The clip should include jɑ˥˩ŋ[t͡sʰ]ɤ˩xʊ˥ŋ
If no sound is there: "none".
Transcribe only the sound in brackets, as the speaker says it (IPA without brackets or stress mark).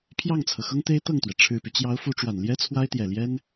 t͡sʰ